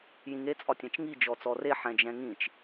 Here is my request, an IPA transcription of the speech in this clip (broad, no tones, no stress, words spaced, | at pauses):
jĩŋe t͡sʼɒtʲɛ̃t͡ʃŋi d͡ʒɔt͡sɔre ħɛ̃d͡ʒɛ̃ŋĩt͡ʃ